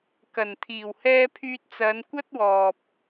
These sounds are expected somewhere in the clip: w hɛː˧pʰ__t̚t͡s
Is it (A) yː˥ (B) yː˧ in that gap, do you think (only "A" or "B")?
B